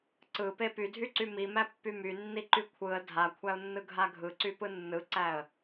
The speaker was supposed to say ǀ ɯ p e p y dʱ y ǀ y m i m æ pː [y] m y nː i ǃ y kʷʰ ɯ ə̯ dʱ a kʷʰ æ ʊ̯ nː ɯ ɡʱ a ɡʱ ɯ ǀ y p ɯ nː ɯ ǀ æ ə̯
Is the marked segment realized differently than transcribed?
no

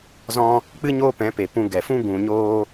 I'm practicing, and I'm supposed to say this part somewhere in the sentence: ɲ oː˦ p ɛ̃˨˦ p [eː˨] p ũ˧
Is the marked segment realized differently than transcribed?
yes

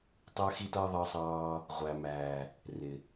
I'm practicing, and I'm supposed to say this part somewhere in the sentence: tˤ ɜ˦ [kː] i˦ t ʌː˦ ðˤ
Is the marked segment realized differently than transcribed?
yes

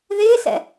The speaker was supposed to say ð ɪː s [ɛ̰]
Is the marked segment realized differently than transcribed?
no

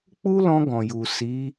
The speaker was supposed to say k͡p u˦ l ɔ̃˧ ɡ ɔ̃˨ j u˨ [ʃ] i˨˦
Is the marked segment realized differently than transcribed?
yes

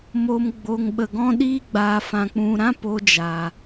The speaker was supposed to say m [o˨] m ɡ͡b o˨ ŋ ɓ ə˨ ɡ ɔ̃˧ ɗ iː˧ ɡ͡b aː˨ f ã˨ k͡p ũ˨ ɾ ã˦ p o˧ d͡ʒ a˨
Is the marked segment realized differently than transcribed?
no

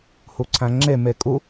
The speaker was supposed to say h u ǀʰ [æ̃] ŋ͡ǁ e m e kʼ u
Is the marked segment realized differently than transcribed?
no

